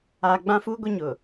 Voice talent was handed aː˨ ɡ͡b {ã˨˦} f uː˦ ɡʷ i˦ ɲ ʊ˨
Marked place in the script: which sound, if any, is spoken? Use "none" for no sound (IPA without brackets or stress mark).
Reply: ã˦